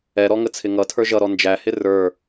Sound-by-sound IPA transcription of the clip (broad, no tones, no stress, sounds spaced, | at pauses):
ɛ ɾ ɔ ŋ ə t͡sʰ ɪ ŋ ʌ tʰ ə˞ ʒ ʌ ɾ ɔ n d͡ʒ æ h ɪ r ə˞